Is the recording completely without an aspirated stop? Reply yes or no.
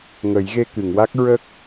yes